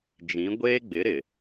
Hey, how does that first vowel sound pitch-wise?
rising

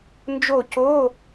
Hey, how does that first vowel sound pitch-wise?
falling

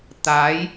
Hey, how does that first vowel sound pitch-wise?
rising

